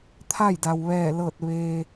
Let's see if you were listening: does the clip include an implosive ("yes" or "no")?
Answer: no